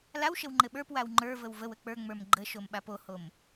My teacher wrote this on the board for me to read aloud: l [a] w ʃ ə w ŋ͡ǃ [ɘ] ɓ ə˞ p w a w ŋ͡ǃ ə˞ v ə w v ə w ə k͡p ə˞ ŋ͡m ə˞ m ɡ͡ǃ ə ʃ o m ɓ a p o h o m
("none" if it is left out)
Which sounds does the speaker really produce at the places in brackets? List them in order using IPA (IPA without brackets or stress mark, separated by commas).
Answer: a, ɘ